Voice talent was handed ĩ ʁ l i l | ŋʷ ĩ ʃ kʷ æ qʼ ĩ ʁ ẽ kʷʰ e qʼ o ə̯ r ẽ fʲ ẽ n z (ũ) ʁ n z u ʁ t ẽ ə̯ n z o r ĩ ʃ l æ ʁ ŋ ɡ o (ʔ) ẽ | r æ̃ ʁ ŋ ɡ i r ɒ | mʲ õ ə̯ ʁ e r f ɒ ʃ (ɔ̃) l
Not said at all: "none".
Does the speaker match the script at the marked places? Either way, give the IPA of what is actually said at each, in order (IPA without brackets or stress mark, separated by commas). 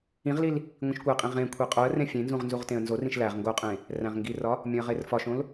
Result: ũ, qʼ, õ